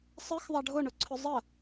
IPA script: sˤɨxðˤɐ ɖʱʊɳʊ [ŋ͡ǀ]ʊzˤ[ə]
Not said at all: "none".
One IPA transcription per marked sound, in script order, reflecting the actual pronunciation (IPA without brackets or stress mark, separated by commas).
ǀʰ, ə